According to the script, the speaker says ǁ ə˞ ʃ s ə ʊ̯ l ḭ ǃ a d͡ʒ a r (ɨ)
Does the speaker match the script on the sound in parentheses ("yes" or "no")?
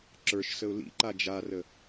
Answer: no